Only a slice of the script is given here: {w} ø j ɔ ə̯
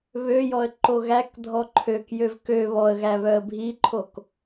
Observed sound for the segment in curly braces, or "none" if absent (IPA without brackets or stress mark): β